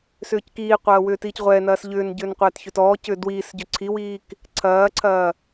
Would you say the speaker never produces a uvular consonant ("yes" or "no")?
no